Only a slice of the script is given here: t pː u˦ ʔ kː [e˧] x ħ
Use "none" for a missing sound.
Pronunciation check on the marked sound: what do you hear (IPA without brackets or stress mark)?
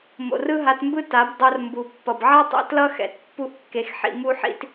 e˧